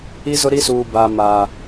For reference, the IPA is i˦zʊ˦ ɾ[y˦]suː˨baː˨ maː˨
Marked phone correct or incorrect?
incorrect